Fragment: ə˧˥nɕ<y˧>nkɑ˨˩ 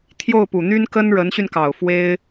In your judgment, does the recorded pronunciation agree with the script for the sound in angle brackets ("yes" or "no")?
yes